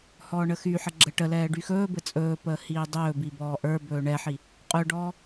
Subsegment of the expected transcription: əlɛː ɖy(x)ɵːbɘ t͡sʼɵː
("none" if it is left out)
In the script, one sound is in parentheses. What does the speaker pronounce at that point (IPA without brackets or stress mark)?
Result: x